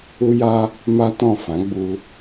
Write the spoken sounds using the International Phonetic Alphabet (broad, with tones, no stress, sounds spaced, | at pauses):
u˦ j a˦ | m a˦ t ɔ̃˦˨ f ã˨˦ ɡ͡b u˧